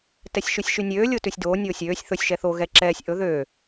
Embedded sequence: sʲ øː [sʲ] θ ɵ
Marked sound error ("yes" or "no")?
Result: no